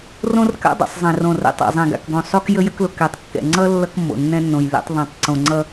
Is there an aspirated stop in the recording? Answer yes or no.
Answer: no